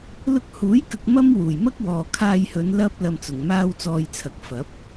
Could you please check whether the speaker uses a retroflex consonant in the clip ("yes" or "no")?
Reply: no